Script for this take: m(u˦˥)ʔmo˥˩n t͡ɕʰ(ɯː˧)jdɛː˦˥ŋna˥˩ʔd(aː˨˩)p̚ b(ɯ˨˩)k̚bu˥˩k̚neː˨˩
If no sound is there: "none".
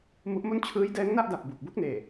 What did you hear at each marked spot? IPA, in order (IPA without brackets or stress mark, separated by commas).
u˦˥, ɯː˦˥, a˨˩, u˨˩